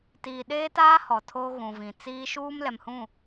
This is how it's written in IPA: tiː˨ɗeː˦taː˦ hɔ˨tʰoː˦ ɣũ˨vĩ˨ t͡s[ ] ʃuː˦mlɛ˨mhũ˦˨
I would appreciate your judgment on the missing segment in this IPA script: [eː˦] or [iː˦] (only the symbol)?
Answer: iː˦